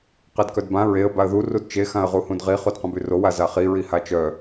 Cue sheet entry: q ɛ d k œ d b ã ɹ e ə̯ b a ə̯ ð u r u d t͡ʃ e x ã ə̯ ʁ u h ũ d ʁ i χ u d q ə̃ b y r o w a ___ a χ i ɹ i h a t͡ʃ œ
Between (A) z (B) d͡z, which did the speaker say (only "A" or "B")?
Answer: A